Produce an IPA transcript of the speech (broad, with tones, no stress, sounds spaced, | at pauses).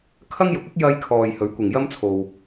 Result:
kʰ ɐ˥ ŋ j ʊ˨˥ k̚ ɪ˥ k̚ j ɐ˧ j kʰ ɔː˨ j h ɵ˨˥ ɥ kʷ ɪ˨ ŋ j ɐ˥ m t͡sʰ o˧ w